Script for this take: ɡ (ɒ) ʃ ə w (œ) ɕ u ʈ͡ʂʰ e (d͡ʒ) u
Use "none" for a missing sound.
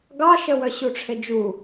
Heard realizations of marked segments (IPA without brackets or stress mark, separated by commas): ɑ, œ, d͡ʒ